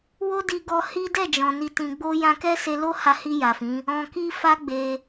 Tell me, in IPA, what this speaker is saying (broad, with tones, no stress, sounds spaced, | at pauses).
w o˦ d i˧ ɡ ɔ˧ h i˦ d ɛ˦˨ d͡ʒ ɔ̃˨ n i˨ t ĩ˨ ɡ͡b o˧ j ã˧ k ɛ˦ s e˧ l o˦ h a˧ h i˧ j a˨ f ĩ˨˦ | ɔ̃˧ k i˦ f a˦ ɡ͡b e˧